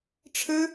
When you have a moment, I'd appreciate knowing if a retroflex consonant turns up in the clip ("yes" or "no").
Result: yes